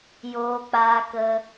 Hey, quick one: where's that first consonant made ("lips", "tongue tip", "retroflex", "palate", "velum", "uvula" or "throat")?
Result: palate